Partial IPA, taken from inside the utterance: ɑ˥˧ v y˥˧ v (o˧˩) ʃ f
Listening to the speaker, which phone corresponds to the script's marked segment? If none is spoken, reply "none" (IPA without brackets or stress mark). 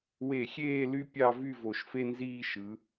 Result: o˧˩